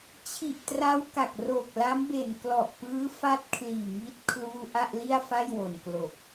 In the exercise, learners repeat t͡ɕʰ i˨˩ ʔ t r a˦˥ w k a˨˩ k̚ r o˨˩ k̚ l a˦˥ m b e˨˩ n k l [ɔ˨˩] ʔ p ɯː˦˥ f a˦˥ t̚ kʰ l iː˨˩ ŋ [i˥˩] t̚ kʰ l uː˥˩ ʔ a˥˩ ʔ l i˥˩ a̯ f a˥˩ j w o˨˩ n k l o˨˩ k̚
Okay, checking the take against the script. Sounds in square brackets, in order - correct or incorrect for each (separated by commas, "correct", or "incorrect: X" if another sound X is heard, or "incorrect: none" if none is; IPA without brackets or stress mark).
correct, incorrect: i˦˥